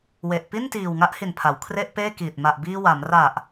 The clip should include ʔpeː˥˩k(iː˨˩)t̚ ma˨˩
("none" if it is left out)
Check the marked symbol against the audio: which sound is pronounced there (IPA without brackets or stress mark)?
iː˨˩